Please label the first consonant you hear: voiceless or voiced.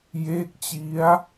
voiced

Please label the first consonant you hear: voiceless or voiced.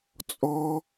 voiceless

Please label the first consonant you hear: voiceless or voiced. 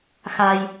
voiceless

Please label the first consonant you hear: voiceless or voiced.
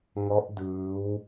voiced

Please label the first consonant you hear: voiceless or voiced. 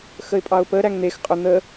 voiceless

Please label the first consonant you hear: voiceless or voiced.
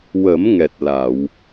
voiced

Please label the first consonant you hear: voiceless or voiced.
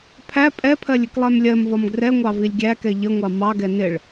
voiceless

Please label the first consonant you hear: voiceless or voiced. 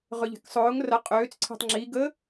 voiced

